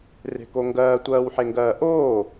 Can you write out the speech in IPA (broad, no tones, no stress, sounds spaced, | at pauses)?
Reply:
r e̤ k o ŋ ɡ ɜː tʷ ɜː w ħ e ŋ ɡ ɜː ʔ oː